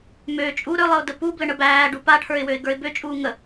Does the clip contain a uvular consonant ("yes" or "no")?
no